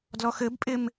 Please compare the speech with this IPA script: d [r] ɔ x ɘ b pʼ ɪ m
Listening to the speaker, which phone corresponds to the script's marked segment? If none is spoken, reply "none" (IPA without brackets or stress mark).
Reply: l